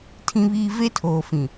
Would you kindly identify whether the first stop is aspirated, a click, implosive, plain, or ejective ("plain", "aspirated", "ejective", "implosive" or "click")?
aspirated